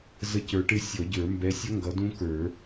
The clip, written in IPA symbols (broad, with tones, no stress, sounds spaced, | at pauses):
z ə˦˨ c ə˞˨˥ ʈ ɪ˦˥ sʲ ɔ˨˩˦ ɟ ə˞˨˩˦ m b ɛ˨˥ sʲ ʌ˦˥ ŋ ɡ ʌ˨˥ d ũ˦˥ k ə˞˨˩˦